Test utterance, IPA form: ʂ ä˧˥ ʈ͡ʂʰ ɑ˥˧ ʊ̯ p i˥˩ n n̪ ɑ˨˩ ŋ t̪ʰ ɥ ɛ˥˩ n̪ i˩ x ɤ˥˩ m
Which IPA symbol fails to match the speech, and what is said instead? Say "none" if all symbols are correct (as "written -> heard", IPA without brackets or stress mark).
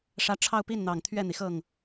m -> ŋ